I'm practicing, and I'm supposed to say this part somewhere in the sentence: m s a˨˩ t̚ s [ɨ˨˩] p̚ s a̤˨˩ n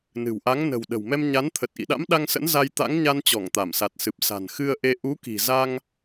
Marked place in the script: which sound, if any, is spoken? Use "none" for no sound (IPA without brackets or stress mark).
ɨ˨˩